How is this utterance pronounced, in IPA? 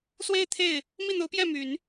swe˥˧ɪ̯t̪ʰe˥˩ɪ̯ | mi˥˩n̪o˧˥ʊ̯pjɛ˥˩ my˨˩˦n

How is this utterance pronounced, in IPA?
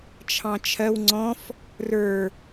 t͡ʃʰɑ̃t͡ʃʰɜw ŋ͡ǀɔ̃f | rə˞

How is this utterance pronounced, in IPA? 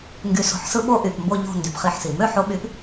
ŋɡy˨˦so̤˨˦ħsɯ˦ ɓo˦ʔy˩˧˩pmbo˦˨ʎo̤˦˨ ndy˩˧˩pχi˦˨ħsi˩ mø˦ħo˨˦ɓy˨˦p

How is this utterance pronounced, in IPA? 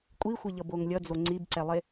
kʷʼixʷeʎʌboŋ lʲʌd͡zo ŋ͡ǀibǀɛlˠe

